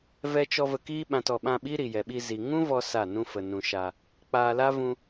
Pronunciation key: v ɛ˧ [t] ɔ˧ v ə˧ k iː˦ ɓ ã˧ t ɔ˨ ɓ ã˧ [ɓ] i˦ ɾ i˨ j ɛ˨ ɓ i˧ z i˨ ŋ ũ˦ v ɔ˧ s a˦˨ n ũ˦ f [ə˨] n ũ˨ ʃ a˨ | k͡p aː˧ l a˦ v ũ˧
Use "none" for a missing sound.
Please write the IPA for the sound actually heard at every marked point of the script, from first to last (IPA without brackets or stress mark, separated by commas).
t͡ʃ, ɓ, ə˨